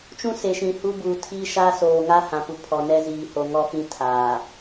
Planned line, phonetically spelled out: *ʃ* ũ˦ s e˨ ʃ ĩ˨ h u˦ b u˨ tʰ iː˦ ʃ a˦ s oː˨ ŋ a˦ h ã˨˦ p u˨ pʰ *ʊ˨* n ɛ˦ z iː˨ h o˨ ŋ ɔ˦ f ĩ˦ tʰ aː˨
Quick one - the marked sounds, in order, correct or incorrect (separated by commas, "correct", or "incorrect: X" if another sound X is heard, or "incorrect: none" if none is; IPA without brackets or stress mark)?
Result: incorrect: t͡ʃ, incorrect: ɔ˨